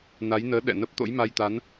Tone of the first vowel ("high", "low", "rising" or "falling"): rising